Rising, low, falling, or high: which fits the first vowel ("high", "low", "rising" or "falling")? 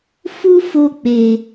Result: high